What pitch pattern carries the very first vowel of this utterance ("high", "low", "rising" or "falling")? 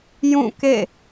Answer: falling